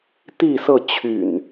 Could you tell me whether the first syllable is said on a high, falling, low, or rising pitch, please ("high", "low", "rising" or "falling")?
falling